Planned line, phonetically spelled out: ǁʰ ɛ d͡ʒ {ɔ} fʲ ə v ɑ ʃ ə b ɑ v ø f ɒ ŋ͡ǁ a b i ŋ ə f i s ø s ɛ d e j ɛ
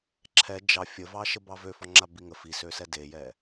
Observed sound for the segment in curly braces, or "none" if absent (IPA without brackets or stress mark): ɑ